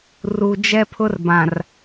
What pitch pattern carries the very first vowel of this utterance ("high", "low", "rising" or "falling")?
low